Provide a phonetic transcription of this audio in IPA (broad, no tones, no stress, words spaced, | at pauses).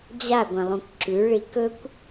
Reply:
d͡ʑaɡʷɐ̃lˠũk ǁʉɭi kɵkʷ